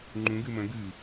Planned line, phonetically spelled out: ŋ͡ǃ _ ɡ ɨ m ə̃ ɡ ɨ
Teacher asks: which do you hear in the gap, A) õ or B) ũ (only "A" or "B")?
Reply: B